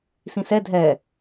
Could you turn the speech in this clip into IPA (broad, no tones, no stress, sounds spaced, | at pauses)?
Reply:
s ĩ s ɛ dʱ ɛ